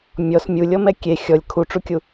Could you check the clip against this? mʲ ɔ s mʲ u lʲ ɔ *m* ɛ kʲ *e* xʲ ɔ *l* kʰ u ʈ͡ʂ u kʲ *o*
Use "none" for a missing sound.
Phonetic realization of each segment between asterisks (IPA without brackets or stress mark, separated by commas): m, e, lʲ, u